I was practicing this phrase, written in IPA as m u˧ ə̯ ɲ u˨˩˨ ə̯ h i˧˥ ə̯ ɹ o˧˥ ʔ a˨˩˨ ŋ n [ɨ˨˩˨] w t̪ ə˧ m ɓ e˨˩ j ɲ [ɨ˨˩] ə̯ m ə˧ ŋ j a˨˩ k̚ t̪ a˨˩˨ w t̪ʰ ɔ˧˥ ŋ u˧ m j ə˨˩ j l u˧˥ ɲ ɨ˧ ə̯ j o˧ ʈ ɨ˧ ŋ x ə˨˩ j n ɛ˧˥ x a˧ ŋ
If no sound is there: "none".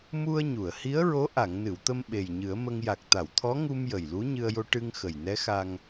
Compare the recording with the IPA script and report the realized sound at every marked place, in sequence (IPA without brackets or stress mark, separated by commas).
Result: ɨ˨˩˨, ɨ˨˩˦